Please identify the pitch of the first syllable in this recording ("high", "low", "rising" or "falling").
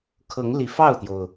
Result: rising